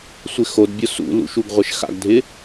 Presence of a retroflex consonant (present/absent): absent